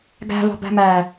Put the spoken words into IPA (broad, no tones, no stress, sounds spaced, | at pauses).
ɡ æ̤ v ɑ̤ b æ̤ m æ